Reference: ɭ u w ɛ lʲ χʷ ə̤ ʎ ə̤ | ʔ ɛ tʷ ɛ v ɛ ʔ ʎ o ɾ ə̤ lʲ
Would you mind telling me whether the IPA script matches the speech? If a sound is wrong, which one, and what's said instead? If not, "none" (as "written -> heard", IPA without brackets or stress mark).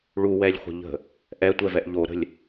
none